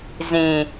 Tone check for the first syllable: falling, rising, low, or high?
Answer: low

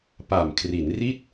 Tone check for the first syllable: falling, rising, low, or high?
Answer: low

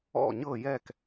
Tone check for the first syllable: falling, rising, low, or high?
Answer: falling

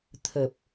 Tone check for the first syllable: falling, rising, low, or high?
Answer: low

